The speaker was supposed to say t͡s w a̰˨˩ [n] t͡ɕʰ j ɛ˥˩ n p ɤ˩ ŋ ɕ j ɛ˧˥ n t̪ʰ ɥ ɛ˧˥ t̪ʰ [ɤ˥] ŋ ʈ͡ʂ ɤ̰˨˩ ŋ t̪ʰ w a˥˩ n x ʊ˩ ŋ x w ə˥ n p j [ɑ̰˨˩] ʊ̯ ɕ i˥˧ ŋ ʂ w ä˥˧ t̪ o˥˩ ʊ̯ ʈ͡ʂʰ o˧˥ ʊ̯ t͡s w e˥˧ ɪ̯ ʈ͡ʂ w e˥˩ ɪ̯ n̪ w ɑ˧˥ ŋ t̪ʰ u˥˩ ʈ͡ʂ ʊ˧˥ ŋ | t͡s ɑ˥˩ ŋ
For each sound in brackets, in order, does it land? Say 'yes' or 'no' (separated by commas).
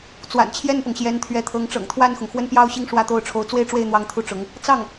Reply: yes, no, no